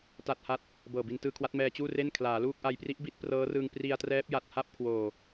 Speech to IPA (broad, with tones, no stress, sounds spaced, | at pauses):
t a˥˩ t̚ h a˥˩ t̚ | b ɤː˨˩ b i˧ n t ɯː˧ kʰ w a˦˥ t̚ m ɛː˧ t͡ɕ uː˥˩ r e˥˩ n kʰ l aː˩˦ l uː˥˩ k̚ ʔ a˧ j p r i˦˥ ʔ b i˦˥ t̚ p r ɤː˦˥ r ɯː˧ ŋ p r i˧ a̯ t r ɛː˦˥ p̚ j a˨˩ t̚ h a˥˩ p̚ kʰ w oː˨˩